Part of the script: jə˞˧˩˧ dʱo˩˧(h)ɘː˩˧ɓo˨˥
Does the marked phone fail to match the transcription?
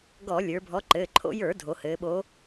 no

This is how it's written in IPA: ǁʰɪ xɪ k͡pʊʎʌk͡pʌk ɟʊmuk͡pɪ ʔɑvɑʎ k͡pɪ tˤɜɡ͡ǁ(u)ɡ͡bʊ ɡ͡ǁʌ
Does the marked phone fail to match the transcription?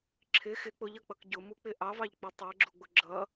no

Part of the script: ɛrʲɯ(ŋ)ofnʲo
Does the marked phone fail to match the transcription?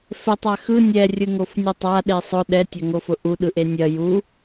no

